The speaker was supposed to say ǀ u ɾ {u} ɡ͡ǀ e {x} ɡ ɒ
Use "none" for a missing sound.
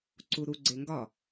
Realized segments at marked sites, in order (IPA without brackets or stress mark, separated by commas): u, ŋ